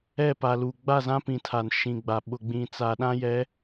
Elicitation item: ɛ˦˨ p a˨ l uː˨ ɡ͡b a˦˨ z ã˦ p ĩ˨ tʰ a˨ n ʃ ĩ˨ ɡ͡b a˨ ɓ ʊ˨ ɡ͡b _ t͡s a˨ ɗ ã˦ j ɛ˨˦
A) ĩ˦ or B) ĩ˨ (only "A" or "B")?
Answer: B